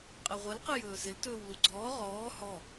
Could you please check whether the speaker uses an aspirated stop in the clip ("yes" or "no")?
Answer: no